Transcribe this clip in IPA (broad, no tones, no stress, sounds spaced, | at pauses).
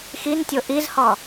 x i n tʲ o ʔ i z h ɔ